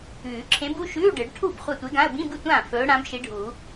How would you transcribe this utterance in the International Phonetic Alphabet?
ʉː˨˩˦ ǁʰ ẽ˧˥ b u˧˥˧ ʃ ʉː˧˥˧ ɖ ɨ˨˩˦ ɖ ʈʰ u˥˩ b χʷ a˥˩ tʷ e˧˥ ɡ ã˧˥˧ ə̯ b ĩ˧˥˧ b ɨ˥˩ tʷ ãː˥˩ f ɵː˧˥ ɽ ã˧˥ b ʃ i˧˥ ɖʱ uː˨˩˦

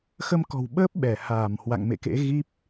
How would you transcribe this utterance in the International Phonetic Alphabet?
x ə˧ m k ɔ̤˨˩ w ɓ əː˦˥ p̚ ɓ ɛ˧˩ h aː˧˩ m h w a̰˧˨ ŋ m ḛ˧˨ k ḛ˧˥ ɣ i˦˥ p̚

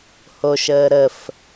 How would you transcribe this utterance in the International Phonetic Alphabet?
h o ʃ əː ɾ ə f

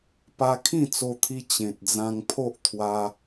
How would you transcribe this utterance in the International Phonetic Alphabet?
p a˧ kʰ ĩ˥˧ t͡s o˧ t̪ʰ i˧ t͡ɕ ẽ˨ t̚ d͡z ã˧ ŋ pʰ o˦ ʔ t̪ʰ w a˧

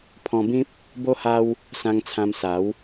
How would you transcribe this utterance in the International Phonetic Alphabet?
pʰ ɔ̃˧ b ĩ˦ p̚ | b o˦ h a˦ w | s ã˧ ŋ t͡sʰ ã˧ m s a˨˦ w

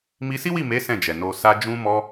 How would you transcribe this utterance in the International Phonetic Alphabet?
m i˧ s i˦ w i˦˨ m e˨˦ s ɛ̃˦˨ d͡ʒ ɛ˨ n o˧ s a˧ d͡ʒ ũ˧ m ɔ˧

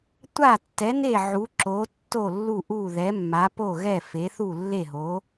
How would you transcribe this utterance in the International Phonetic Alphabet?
tʷ a˥˩ tː ɛ˩˥ n e˥˩ ʕ u˩˥ ǁ o˩˥ tː o˥˩ lː u˥˩ ʔ u˥˩ ð ɛ˩˥ mː a˩˥ p o˥˩ ɣ ɛ˥˩ f e˩˥ θ u˥˩ lː e˥˩ ɦ o˩˥

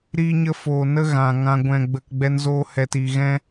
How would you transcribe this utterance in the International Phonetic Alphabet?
ɾ iː˧ ɲ ə˧ f oː˨ n ə˦ ɣ ã˨ ŋ ã˧ ɡʷ ɛ̃˧ ɡ͡b ə˧ k ɡ͡b ɛ˦ n z oː˦ h ɛ˧ t i˧ ɣ ɛ̃˦

